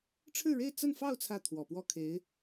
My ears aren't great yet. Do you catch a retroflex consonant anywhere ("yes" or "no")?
yes